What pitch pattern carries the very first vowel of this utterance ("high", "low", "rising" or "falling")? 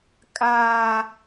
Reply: high